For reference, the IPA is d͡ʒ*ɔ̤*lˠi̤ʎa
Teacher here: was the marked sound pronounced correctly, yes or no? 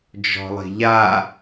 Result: yes